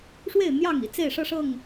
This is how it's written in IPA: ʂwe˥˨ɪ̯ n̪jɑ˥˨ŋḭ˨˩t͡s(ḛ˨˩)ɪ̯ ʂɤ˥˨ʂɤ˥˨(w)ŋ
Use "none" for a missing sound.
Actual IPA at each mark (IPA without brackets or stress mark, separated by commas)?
e˥˨, none